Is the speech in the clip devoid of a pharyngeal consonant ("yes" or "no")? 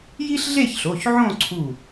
no